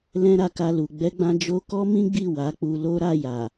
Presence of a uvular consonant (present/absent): absent